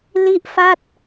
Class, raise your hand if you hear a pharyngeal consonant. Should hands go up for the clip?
no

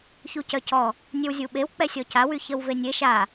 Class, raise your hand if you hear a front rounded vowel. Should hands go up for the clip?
yes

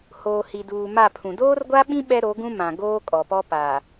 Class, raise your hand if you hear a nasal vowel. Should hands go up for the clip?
yes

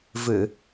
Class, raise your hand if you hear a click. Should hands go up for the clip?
no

